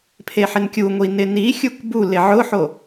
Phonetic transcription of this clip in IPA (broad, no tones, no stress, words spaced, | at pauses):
pʰeħɪnkʲuŋʷi nɪnixʲuk bu lɪʕʊħo